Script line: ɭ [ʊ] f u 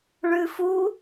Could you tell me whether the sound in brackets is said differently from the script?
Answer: yes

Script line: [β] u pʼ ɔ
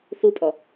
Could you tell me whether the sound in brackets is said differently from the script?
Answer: yes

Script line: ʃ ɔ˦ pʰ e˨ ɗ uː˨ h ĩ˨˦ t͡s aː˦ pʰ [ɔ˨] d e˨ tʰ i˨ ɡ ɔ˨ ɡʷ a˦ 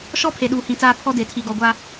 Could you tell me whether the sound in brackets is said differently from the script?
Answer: yes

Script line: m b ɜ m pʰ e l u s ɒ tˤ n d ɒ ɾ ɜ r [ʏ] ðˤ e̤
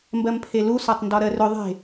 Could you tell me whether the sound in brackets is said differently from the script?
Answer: no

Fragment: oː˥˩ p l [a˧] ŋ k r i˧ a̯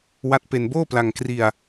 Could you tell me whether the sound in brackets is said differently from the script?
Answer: no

